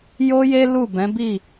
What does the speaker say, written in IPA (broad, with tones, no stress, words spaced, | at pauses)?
jo˦je˦ lu˦˨bɛ̃˨˦bi˦˨